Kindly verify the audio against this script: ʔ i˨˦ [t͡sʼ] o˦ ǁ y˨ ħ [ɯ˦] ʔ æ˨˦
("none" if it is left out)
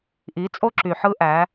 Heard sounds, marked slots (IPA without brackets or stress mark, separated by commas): t͡sʼ, ɯ˦